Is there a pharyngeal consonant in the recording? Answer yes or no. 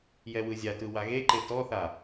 no